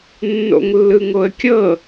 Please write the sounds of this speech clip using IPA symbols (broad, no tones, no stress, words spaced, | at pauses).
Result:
nːo̰ŋlːɯŋoə̯kʲɤ